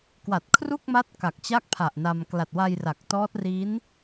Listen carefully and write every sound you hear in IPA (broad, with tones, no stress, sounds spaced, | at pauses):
k w a˨˩ t̚ kʰ r u˥˩ k̚ m a˦˥ t̚ k a˨˩ k̚ t͡ɕ a˥˩ k̚ pʰ a˨˩ ʔ n a˧ m k l a˨˩ t̚ w a˧ j r a˨˩ k̚ t ɔː˦˥ t̚ r i˦˥ n